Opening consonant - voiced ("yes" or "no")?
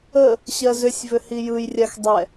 no